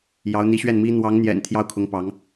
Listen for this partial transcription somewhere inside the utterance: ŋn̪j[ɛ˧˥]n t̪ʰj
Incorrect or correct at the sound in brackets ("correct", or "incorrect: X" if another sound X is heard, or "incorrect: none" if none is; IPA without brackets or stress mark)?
incorrect: ɛ̰˨˩